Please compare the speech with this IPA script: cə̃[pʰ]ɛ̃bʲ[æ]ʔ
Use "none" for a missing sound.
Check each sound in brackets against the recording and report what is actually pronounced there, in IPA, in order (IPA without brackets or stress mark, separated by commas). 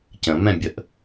m, ə